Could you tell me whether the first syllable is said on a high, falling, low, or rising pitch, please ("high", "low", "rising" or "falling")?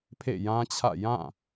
falling